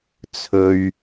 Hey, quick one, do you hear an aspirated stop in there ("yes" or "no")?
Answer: yes